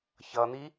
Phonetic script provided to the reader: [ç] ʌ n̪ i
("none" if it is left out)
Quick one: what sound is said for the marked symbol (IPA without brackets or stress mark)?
ç